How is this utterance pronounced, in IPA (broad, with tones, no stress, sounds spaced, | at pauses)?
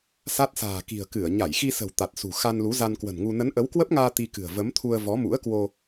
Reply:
s a˦˥ t̚ s a̤ː˨˩ k i̤˨˩ ə̯ k ɨ˧˩ ə̯ ɲ a˧˩ j x i˧ s ə̤˨˩ w t̪ a˨˩ t̚ s ṳ˨˩ x a˧ n l u˨˦ z a˧ n k w ə̤˨˩ n ŋ u˧ n ə˨˦ n ʔ ə˨˦ w k w ə˦˥ p̚ ŋ aː˧ t̪ i˧ k ɨ̤˨˩ ə̯ v ə˨˦ m t̪ʰ u˧ ə̯ v ɔ˨˦ m ṵ˧˥ ə̯ k w o˧